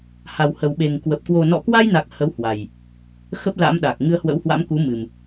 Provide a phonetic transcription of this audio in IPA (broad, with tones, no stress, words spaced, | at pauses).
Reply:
ha˨˩w hə˨˩wɓe˨˩ŋkwə˨˩p̚ kwo˨˩nɔ̰˧˨kwa˧jna˨˩k̚ hə˨˦w hwa˨˩j | xə˦˥p̚ la̰˧˥mɗa˨˩k̚ ŋɨ˧ə̯hwə̰˧˥whwa̰˧˥m ku˨˦mɨ˨˩m